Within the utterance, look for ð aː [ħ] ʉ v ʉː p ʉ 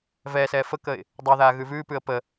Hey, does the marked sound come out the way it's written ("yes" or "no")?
no